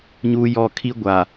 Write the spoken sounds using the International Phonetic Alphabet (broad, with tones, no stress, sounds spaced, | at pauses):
ɲ uː˦ j ɔ˦˨ kʰ i˦ ɡʷ a˨